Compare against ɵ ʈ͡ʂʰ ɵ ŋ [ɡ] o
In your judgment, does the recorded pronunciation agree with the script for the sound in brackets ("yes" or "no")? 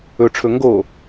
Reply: yes